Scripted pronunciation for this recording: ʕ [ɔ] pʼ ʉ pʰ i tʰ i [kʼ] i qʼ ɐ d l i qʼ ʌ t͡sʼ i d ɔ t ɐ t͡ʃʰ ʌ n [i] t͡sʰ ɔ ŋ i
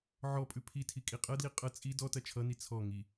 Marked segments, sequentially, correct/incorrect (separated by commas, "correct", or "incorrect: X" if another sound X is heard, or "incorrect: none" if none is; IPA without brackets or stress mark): correct, correct, correct